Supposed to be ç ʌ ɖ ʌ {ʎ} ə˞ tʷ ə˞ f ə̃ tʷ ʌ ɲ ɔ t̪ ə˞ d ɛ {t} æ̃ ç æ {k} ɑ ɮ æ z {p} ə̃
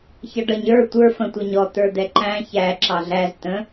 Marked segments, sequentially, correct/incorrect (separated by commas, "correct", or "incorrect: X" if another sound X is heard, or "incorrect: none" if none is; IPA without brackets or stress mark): incorrect: ɲ, incorrect: ǃ, incorrect: ǁ, incorrect: t̪